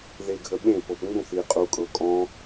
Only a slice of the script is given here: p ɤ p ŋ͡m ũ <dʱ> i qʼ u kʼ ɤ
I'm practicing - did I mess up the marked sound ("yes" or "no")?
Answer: yes